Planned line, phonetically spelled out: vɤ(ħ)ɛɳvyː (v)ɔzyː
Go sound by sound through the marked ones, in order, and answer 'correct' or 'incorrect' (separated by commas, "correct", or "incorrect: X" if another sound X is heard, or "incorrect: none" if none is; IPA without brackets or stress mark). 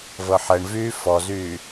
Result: correct, incorrect: f